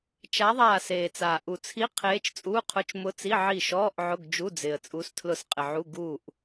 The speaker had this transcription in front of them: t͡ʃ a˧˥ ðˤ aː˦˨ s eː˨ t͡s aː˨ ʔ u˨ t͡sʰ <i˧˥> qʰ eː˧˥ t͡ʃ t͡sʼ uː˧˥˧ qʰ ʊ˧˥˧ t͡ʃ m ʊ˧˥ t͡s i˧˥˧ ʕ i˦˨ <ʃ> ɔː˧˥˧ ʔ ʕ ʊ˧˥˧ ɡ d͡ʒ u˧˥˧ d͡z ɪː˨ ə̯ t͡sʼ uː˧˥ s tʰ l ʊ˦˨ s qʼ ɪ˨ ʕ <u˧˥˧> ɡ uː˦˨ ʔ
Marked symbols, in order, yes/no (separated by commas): yes, yes, yes